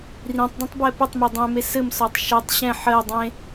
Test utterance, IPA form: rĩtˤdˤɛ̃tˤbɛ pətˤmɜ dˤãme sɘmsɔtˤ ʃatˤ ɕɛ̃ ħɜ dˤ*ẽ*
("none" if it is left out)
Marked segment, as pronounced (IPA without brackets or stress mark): ẽ